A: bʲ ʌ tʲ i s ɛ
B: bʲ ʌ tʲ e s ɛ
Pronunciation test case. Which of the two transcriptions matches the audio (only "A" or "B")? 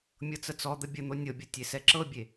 B